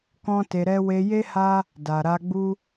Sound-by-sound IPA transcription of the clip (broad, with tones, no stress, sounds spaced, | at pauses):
k ɔ̃˦ t e˧ ɾ ɛ˦ w e˧ j e˦ h a˦ | d a˨ ɾ a˧ ɡ͡b u˦